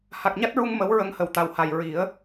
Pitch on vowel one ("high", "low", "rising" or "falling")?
low